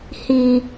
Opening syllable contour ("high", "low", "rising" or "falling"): high